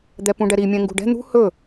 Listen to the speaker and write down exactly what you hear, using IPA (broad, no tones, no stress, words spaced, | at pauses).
d̪ɛpũɖɛɾi mʲɛ̃ŋɡṳɖɛ̤ n̪ṳ hɵ